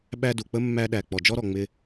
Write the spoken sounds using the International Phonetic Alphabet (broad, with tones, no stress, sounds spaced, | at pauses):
ɓ æ˥ d u˩ k͡p ə˥ mː æ˥ ɗ æ˩ k͡p ɔ˩ d͡ʒ ɔ˥ ɾ ɔ˩ ŋ͡m ɪ˥